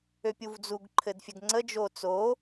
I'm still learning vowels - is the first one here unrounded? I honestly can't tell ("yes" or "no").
no